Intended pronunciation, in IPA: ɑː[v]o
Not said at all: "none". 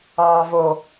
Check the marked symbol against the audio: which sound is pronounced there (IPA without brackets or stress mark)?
v